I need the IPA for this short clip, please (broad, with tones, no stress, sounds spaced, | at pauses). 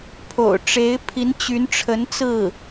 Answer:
pʰ o̰˨˩ ʊ̯ ʈ͡ʂ e˧˥ ɪ̯ pʰ i˧˥ n t͡ɕ y˧˥ n ʈ͡ʂʰ ə˧˥ n t͡s ɹ̩˥˩